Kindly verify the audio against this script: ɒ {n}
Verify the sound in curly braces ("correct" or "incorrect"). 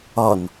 correct